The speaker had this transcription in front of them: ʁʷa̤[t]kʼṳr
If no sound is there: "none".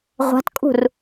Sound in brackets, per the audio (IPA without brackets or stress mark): t